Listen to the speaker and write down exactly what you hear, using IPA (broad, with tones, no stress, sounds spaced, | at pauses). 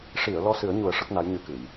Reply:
ʂ i˨˩˨ ə̯ l ɔ˧ s ɨ˨˩˦ ə̯ ɲ u˨˩˦ ə̯ ʂ ə˦˥ k̚ n a˧˥ j ɲ ɨ˧˥ k ɨ˨˩˨ j